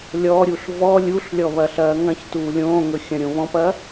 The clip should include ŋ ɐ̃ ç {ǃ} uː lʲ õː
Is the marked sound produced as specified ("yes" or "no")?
no